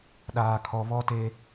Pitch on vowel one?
low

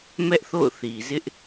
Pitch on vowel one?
high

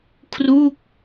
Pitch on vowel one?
falling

